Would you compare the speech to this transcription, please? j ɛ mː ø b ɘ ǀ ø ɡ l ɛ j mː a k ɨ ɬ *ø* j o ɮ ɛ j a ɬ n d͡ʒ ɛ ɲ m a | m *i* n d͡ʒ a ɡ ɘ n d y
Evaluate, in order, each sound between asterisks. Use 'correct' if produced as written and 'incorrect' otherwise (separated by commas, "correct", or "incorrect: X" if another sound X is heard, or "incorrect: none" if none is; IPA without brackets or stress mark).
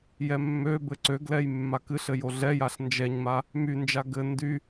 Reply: incorrect: ɘ, incorrect: y